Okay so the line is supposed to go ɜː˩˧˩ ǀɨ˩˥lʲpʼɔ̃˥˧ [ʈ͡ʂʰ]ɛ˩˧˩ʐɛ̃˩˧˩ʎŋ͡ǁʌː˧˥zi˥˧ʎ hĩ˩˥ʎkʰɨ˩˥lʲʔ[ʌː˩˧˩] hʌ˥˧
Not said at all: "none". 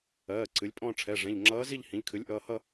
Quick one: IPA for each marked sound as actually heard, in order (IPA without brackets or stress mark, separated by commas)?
ʈ͡ʂʰ, ʌː˩˧˩